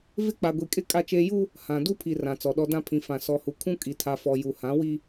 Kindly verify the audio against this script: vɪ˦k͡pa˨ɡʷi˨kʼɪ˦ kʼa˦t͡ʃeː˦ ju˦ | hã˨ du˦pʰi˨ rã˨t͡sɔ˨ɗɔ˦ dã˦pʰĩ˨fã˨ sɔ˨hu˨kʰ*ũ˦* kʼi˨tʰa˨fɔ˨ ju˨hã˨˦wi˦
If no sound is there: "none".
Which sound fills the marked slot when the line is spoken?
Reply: ũ˦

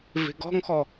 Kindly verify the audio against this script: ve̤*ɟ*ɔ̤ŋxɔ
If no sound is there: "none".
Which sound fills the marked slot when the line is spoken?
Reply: ɡ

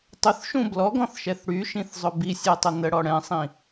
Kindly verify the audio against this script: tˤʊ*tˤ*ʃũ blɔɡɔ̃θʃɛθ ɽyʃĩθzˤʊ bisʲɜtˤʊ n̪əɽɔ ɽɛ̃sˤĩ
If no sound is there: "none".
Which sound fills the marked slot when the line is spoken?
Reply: θ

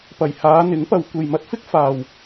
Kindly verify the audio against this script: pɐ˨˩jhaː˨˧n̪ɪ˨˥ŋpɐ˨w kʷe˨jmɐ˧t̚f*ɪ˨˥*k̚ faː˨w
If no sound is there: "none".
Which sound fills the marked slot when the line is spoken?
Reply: ɪ˥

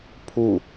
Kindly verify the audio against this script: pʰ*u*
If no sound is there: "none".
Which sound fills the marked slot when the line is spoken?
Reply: u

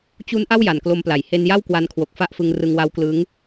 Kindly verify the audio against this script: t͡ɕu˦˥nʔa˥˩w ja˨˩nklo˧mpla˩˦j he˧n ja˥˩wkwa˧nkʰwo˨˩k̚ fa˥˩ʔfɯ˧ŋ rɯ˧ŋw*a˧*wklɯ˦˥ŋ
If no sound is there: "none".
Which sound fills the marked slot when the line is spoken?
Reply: a˦˥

